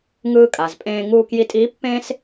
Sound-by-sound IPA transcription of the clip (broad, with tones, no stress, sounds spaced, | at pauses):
ŋ ɯː˧ kʼ a˩ z pʼ ẽː˧ ŋ uː˧ k j i˧ tʼ iː˧˥ pː ẽː˥ s